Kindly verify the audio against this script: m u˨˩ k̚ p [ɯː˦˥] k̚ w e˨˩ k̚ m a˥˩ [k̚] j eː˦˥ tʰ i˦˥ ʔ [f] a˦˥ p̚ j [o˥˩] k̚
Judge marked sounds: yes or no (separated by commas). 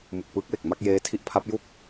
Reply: yes, yes, no, no